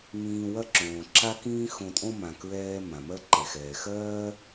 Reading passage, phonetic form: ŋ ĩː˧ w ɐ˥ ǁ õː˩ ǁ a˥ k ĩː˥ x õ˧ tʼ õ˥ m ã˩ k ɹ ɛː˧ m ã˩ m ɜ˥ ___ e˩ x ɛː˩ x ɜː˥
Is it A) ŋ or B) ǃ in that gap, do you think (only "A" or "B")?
B